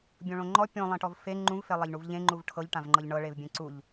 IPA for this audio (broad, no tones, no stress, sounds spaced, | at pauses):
bʲ õ ɭ õ ŋ͡ǃ ɔ pʲ õ lˠ ẽ ʈ ɔ v f e ŋ͡ǃ ũ v f e lˠ a ʎ ɳ u v ʎ ẽ ŋ͡ǃ u v ʈʰ ɤ ʎ ʈ ã v ŋ͡ǃ ɤ ʎ ɳ ɤ ɭ e v bʲ ẽ ǀ u ʎ